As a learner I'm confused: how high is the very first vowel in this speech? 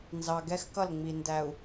low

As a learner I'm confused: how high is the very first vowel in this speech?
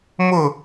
high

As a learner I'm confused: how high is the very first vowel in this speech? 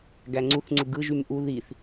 low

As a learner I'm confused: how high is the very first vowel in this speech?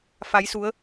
low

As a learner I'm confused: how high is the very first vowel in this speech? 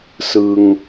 high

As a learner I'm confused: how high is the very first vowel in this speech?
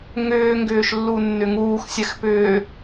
high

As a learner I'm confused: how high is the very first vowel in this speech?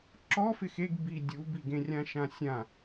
mid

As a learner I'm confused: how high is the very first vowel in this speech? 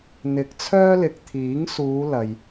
high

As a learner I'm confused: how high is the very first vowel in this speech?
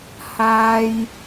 low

